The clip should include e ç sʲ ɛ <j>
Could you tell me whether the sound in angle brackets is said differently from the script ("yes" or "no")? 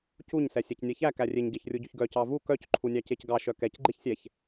yes